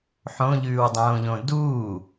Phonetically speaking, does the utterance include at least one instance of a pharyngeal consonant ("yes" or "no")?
yes